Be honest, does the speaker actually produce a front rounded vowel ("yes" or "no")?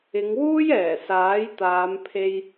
no